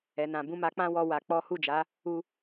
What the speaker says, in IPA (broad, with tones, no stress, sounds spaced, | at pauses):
ɛ˨ n ã˨ b ũ˧ m a˧ k͡p ã˦ w ɔ˧ w a˧ k͡p ɔ˦ h u˦˨ d͡ʒ a˨˦ | u˧